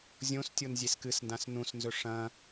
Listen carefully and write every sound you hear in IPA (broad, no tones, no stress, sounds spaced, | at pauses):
zʲ õ s tʲ o n zʲ e s k ɨ s n d ã s n ũ s n z ɵ ʂ ɐ̃